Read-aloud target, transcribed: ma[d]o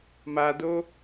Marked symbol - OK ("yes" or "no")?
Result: yes